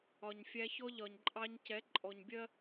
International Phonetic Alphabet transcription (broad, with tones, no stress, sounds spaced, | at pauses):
ɒ˨ ɲ fʲ æ˧ ç ɔ˧ ʎ ɒ˨ ɲ ǃʼ ɑ˧ ɲ c ɛ˨˦ ǃʼ ɔ˨ ɲ bʲ ɜ˦